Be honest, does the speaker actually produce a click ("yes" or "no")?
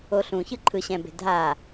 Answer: yes